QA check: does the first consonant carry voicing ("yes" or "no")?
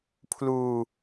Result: no